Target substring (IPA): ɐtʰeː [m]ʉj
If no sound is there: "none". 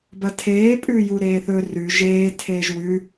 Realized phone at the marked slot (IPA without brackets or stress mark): pʼ